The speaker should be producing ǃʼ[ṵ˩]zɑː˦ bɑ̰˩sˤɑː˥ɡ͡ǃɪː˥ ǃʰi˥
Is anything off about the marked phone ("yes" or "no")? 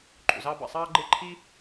no